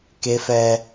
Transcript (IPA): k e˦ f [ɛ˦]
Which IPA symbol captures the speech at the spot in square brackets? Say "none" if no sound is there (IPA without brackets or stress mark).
ɛ˦